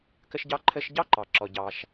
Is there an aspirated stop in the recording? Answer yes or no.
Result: yes